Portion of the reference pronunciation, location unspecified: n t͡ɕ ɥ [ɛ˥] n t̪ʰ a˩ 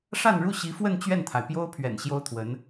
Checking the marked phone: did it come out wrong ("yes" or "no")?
yes